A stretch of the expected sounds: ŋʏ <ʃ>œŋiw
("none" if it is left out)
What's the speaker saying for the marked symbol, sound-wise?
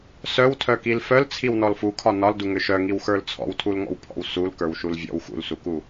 ʃ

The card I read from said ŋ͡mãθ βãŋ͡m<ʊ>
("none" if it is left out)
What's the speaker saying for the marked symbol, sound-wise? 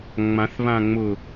ʊ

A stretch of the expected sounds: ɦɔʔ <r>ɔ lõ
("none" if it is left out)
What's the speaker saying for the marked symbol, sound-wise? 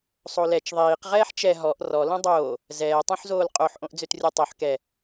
r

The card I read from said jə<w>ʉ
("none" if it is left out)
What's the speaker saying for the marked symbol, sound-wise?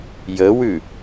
w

